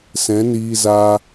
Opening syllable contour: rising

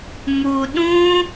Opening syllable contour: low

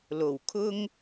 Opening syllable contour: low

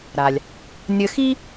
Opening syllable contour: low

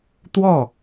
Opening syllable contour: falling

